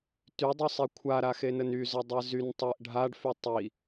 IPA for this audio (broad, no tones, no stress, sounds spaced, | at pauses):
t y dˤ y sˤ i kʷʰ a ɾ a x e n ə n y z ə dˤ ɛ z y n tˤ e ʔ ɖʱ a ɖ f y tˤ i